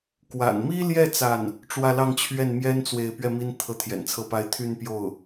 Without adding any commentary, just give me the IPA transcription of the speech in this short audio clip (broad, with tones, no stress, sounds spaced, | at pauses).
k w a̰˨˩ n m i˥ l j ɛ˥˧ t͡s a˥˩ n | ʈ͡ʂ w ä˥˧ l ɑ˥˧ ŋ t͡ɕʰ ɥ ɛ˥˩ n m j ɛ˥ n t͡s w e˥˧ ɪ̯ p ɥ ɛ˥˩ m i˥ n t̪ʰ ɤ˧˥ t̪ʰ j ɛ̰˨˩ n t͡sʰ ɤ˥˩ p a˥ ɪ̯ t̪ʰ y˥˧ n p j o˥˩ ʊ̯